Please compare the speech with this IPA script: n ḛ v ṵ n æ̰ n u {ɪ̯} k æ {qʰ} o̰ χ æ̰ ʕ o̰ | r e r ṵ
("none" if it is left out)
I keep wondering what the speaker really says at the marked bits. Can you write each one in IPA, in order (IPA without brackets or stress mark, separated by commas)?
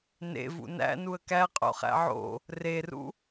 ə̯, qʼ